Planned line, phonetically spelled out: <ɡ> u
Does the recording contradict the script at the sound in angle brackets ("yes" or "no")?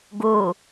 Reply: no